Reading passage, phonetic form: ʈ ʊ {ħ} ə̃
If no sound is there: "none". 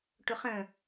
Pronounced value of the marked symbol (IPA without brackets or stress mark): χ